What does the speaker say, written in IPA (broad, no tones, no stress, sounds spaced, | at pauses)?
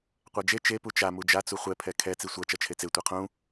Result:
qʷ a d͡ʒ e t͡ʃ e p u t͡ʃ a m u d͡ʒ a t͡s u χʷ ɛ pʰ ɛ kʰ ɛ t͡s i sʷ ʌ t͡ʃ ʌ t͡ʃʰ e t͡s e tʷ ɛ qʰ ũ